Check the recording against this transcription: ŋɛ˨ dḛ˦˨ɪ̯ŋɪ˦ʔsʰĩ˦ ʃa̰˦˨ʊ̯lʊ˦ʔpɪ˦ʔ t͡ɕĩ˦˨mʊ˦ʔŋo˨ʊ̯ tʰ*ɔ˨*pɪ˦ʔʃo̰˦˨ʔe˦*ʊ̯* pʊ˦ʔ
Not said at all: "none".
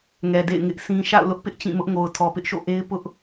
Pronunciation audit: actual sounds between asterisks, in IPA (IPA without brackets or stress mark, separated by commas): ɔ˨, ɪ̯